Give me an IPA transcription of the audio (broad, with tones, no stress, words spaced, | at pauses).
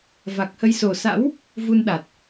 va˨˩k̚hə˧jso˨˩ sa̰˧˥w | vu˧nɗa˨˩t̚